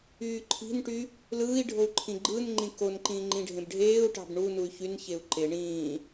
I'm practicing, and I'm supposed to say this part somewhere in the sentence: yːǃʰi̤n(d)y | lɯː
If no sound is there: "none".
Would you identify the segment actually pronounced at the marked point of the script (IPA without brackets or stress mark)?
ʈ